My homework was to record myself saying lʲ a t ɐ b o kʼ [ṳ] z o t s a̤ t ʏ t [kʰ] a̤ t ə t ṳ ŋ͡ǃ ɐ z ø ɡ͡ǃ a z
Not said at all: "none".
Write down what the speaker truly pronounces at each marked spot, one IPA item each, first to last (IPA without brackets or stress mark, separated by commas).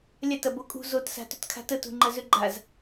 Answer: ṳ, kʰ